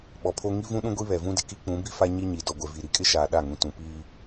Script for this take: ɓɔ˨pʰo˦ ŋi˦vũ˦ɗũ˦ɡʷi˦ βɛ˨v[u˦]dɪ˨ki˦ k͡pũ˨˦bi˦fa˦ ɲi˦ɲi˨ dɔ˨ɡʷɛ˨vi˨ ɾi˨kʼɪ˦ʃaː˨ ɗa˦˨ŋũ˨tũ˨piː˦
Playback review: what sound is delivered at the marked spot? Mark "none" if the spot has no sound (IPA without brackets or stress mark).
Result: ũ˦